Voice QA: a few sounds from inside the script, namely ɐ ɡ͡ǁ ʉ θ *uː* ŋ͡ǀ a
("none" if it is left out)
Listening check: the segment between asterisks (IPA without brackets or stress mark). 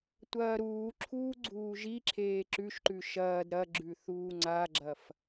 uː